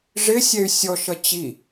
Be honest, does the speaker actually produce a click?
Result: no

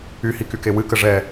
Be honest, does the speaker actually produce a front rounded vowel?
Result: yes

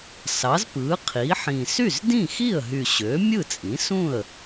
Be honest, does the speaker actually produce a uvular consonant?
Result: yes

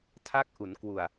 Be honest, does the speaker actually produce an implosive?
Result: no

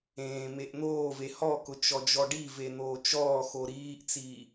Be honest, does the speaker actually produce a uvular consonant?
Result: no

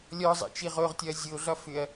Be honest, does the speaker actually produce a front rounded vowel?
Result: yes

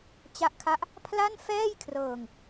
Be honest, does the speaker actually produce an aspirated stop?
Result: yes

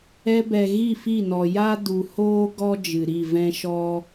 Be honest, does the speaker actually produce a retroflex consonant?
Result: no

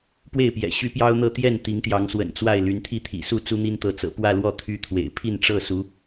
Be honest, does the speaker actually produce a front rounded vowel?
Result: yes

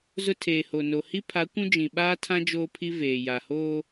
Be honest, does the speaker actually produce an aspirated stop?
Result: yes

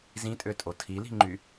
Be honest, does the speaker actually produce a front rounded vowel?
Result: yes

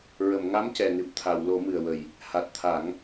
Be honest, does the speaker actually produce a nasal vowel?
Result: no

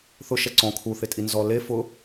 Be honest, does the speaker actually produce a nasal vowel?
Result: yes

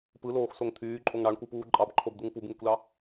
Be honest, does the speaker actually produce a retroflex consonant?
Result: yes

